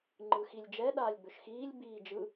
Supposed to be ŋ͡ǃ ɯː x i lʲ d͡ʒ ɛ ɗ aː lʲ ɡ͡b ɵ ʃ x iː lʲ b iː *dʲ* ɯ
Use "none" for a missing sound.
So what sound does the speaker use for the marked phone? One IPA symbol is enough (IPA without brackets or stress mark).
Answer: d͡ʒ